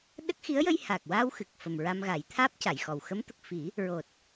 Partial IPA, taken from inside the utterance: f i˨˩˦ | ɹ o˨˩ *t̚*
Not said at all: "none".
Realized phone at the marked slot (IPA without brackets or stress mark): t̚